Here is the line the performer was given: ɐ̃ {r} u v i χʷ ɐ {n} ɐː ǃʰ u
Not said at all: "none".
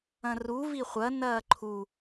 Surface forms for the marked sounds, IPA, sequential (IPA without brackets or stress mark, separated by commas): r, n